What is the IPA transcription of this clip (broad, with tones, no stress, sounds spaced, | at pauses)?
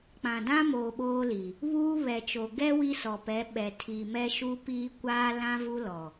k͡p ã˨ d ã˦ m oː˨ ɓ oː˦ l i˨ | β uː˦ β ɛ˨ t͡ʃ o˨ ɡ ɛ˦ w i˦ s ɔ˨ p ɛ˨˦ ɓ ɛ˨ tʰ i˨ m ɛ˦ ʃ u˦ p iː˦ kʷ aː˦ l ã˦ v u˦ l ɔ˨